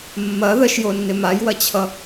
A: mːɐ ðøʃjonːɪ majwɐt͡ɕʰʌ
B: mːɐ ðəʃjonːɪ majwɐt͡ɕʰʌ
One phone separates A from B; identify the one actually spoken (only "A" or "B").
B